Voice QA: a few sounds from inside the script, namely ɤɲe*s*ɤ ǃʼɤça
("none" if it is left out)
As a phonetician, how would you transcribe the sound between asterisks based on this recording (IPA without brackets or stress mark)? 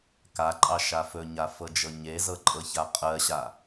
z